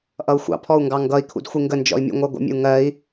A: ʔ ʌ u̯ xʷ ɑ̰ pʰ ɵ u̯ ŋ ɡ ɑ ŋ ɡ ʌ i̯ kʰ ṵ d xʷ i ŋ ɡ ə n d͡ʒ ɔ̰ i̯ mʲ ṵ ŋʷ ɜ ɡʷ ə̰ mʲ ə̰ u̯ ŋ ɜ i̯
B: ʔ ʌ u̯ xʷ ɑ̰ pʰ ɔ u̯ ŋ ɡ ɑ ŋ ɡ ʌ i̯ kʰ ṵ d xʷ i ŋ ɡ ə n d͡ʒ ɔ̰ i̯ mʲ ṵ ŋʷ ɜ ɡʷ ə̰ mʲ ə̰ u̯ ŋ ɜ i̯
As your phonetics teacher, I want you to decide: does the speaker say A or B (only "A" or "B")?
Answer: B